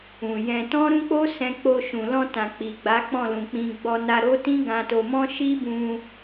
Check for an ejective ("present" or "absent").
absent